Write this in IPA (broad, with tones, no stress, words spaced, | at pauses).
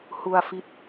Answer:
hu˧a̯fi˦˥t̚